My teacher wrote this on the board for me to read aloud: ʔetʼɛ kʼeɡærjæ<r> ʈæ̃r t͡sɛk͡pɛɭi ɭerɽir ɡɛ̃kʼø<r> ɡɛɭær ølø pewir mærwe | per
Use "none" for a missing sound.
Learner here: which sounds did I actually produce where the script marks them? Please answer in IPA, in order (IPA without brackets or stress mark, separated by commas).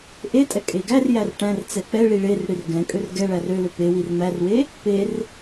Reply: r, r